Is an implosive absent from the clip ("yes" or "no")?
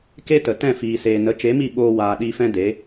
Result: no